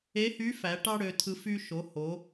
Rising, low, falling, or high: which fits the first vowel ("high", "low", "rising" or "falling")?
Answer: rising